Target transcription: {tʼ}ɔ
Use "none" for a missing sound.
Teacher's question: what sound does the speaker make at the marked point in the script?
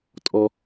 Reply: tʼ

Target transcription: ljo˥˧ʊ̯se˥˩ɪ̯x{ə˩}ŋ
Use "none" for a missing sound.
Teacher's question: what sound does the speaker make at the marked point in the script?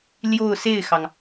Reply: ɑ˩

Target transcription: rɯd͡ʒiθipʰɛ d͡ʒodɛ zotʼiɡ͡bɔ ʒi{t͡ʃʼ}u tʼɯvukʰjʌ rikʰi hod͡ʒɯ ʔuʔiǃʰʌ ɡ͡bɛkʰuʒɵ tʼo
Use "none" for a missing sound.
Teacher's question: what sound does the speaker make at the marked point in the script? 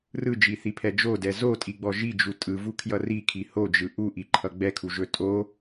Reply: d͡ʒ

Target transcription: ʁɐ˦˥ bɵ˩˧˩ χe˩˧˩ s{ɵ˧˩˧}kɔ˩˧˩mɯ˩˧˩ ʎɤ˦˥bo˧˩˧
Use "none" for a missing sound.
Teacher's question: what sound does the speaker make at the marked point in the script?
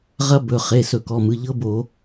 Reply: ɵ˧˩˧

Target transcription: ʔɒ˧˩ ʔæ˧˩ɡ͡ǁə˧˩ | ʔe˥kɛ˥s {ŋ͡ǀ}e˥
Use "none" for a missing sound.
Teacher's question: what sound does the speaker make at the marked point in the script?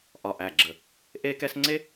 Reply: ŋ͡ǀ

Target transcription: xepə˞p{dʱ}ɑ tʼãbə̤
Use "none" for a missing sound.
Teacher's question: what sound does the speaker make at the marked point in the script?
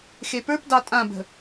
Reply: d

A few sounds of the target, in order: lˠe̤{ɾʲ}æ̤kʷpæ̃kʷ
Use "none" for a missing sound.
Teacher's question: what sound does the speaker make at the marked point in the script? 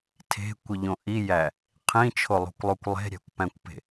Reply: ɾʲ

